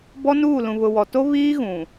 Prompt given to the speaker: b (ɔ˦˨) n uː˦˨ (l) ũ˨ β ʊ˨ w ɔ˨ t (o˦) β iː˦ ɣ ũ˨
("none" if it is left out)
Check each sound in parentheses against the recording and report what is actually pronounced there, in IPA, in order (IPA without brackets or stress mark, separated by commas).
ɔ˦, l, o˦